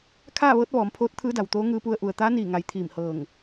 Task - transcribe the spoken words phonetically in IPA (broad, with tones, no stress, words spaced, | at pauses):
kʰaː˥˨ʋɤː˧˥t̚ ʋɔː˩˧mpʰoː˧˥t̚t̪ʰɯː˧˥da˩w t̪oː˧˥ŋɯː˧pu˧ə̯ ʔu˩ə̯t̪aː˧˥ niː˧˩ŋa˩˧j t̪ʰiː˧˩mhɤː˧˩ŋ